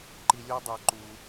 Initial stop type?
click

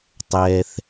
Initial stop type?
plain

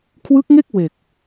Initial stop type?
aspirated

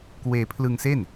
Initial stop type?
plain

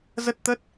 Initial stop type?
plain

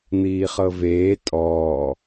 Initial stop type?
ejective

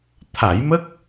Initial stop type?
aspirated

